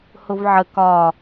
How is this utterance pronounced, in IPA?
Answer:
h ʊ v ʕ ə k ɒ

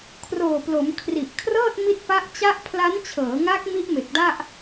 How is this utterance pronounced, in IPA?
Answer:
kʰ r oː˨˩ p l o˩˦ m kʰ r i˨˩ ʔ kʰ r ɤː˥˩ t̚ m i˦˥ t̚ p a˦˥ ʔ t͡ɕ a˦˥ ʔ pʰ l a˦˥ n t͡ɕʰ ɤː˩˦ ŋ a˦˥ k̚ m i˦˥ ʔ m e˨˩ k̚ d a˥˩ ʔ

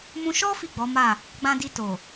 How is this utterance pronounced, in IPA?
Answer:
m ũ˧ ʃ ɔ˦ f i˦˨ ɡ͡b ɔ˨˦ m a˦˨ | ɡ͡b ã˧ d i˧ t o˨

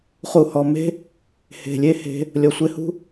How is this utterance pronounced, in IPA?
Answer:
χ u˨ h ɔ˨ m e̤˦ | h e̤˨ lʲ e˦ h e̤˧ | lʲ ɔ˨ sʷ ɪ˧ h ṳ˦

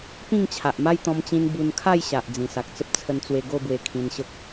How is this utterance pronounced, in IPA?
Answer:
p ĩ˥˧ ŋ t͡ɕʰ a˨ ʔ m a˦ j t̪ ɔ̃˧ m t͡ɕ ĩ˧ n b u˧ n kʰ a˥˧ j ɕ a˨ ʔ d͡z ĩ˨˩ s a˨ k̚ t͡s ə˦ p̚ t͡sʰ ə˧ n t͡s w e˧ ɡ o˥˧ b w e˧ kʰ ĩ˧ n ɕ ə˦ k̚

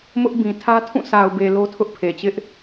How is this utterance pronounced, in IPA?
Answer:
m ʊ˦ ʔ b ĩ˨ tʰ ä˦ tʰ ũ˦˨ sʰ a˨ ʊ̯ b e˨ l o˦ tʰ ʊ˦ ʔ pʰ e˨ t͡ɕ ɪ˦ ʔ

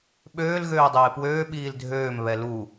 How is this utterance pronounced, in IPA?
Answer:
ɓ øː l ɣ øː dˤ eː p w øː ɓ iː l dʱ øː m β ɛ l u

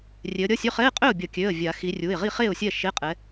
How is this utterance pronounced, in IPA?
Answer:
rʲ e˨˦ ə̯ ɾʲ ʌ˧˥˧ sʲ ø˧˥˧ χ ɛ˧˥˧ ɪ̯ qʼ ø˥˩ ʊ̯ bʲ ʌ˨˩˦ kʲ ø˩˧˩ ə̯ vʲ a˨˩˦ x i˨˦ rʲ u˩˧˩ ɪ̯ ʁ i˥˩ χ e˥˩ ʊ̯ sʲ ɛ˥˩ ʃ e˧˥˧ qʼ ɛ˨˦

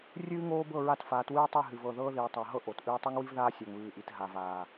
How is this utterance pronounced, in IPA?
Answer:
rʲ ɨː˦ ŋ oː˦ b ɤ˦˨ ɹ a˦ t f aː˨˦ t w ɨː˦ tˤ i˦˨ ɦ ɨ˨ v ɤ˨ ð ɤː˦ ð iː˨ tˤ a˨ ɦ ɤ˦ ʔ o˨ t ʔ ɨː˦ tˤ ɨ˦ ŋ w i˦ v ð aː˦ sʲ a˨ ŋ β ɨː˨ ʔ i˨ t ɦ a˨ v aː˨

